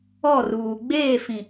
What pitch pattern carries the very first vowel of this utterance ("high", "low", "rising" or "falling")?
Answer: falling